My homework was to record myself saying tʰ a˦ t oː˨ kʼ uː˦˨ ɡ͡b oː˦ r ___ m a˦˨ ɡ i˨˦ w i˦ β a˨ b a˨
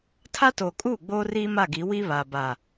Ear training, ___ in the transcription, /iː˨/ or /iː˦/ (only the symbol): iː˦